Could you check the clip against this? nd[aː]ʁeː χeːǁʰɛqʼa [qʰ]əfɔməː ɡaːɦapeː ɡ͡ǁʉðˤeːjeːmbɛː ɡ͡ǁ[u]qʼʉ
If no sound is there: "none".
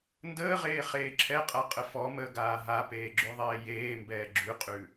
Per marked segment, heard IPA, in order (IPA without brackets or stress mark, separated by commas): əː, qʼ, ʉ